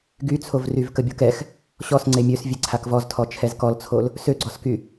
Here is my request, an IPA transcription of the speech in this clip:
ɡ y t͡sʰ o v r y v k ə bʲ o k ɛ x | ɕ ɔ s ŋ͡ǀ e mʲ ø s vʲ e ǀʰ a k v ɔ z tʰ ɔ t͡ʃʰ ɛ z k ɔ l t͡sʰ o l | s ø ɡ͡ǀ ɔ s k y

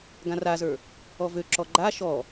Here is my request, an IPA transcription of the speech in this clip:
ɡ ã r a z ə˞ | ɔ v ø ǁ ɔ ɡ͡ǃ a ʃ ɔ

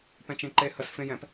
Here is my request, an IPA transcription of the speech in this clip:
p ɛ̃ t͡ʃ ẽ ǃ e h ə s f ẽ j ɛ̃ p

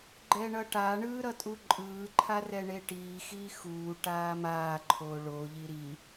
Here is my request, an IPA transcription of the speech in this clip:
ɡ͡ǃ ɛ ɳ ʌ ʈ a ɳ ɯː ɾ ʌ tʼ u ǃʼ ɯː ǃʰ a r ɛ ɳ e ʈ iː x iː x uː ʈ aː m aː ǃʰ oː ɭ o ʎ i ɾ i

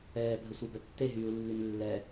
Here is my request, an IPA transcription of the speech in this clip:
ɛː bʱ ə sʷ e b œ tː e ɦ yː u̯ lː y n lː ɛ

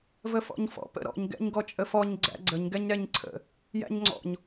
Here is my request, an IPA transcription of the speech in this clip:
v ə f ɔ̰ ɲ f ɔ̰ p ə̰ ɾ ɔ̰ ɲ ɡ ɛ̰ ɲ ɡ ɔ t͡ʃʼ ə f ɔ ɲ ɡ͡ǀ æ̰ ɡ͡ǀ ə ɲ ɡ ɛ ɲ ɾ ɛ ɲ ǀʰ ə̰ | j æ̰ ɲ ŋ͡ǀ ɔ̰ ɲ

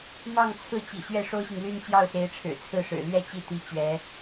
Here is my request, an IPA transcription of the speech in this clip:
m ɑ˥˧ ŋ t͡sʰ ɹ̩˥˩ t͡ɕ ḭ˨˩ ɕ ɥ ɛ˥˩ ʂ o˥ ʊ̯ ɕ i˨ ŋ l y˥˧ n t͡ɕ j ɑ˥˩ ʊ̯ s e˧˥ ɪ̯ ʈ͡ʂʰ ɻ̩˨˩ t͡sʰ ɹ̩˥˩ ʂ ɻ̩˨˩ l ɥ ɛ˥ t͡ɕ i˥˩ t̪ i˧˥ t͡ɕ ɥ ɛ˧˥

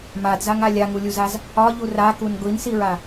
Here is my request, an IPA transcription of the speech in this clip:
m a d z a ŋ a lʲ a ŋ u lʲ u z a z | ɒ ʎ u r a k u n ɡʷ i n s i ɹ a

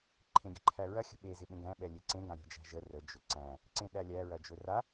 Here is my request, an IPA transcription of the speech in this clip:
ǃʰ ẽ ɡʲ ə̤ ǃʰ æ ɹ ɐ xʲ ə̤ ɓ e z ɪ ɓ ẽ ɡ æ̃ ɓ ɛ lʲ e ǀ ẽ ɡ ã ɾʲ æ̤ d͡ʒ æ̤ ʒ ə r ə d͡ʒ ɵ ǀ æ̃ | ǀ ẽ ɗ æ lʲ æ ɹ ɐ d͡ʒ ɵ r a

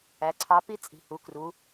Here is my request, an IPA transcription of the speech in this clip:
æ˩˧ ǀʰ ɑ˨˥ p i˦ t͡sʼ i̤˨˩ h u˩˧ k r u˩˧

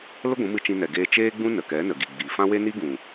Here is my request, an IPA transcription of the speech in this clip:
l ə˦ ɡʷ ũ˨˦ m ɨ˧ t͡ʃ ĩ˧ n ɛ˨ ɡ eː˧ t͡ʃ eː˦ ɡ͡b ũ˦ n ə˨ k ɛ˨˦ n ə˨ ɡ i˨ ɡ͡b i˨ f ã˦ w e˦ n i˦ ɡ ũ˨

